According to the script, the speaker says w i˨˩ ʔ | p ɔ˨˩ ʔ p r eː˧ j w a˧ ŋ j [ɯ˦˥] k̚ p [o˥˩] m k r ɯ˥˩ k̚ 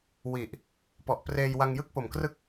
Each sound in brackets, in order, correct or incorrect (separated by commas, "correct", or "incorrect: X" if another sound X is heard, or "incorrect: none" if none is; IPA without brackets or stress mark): incorrect: ɯ˥˩, incorrect: o˨˩